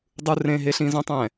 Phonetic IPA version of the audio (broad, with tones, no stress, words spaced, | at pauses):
dˤu˦rẽ˦ɦe˦ɬ ĩ˦zõ˦tˤɛ̃˨